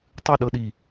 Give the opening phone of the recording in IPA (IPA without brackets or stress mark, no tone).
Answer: tˤ